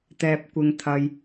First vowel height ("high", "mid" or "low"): mid